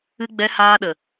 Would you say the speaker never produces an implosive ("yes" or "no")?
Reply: no